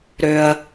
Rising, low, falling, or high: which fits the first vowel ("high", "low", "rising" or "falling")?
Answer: high